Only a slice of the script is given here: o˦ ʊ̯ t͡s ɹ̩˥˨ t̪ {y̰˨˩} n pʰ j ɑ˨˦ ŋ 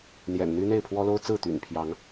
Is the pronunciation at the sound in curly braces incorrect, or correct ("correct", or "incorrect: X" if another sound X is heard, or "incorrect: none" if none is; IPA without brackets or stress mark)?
correct